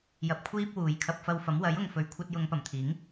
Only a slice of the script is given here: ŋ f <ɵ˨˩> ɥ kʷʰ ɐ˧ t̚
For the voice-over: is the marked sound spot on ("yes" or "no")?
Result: no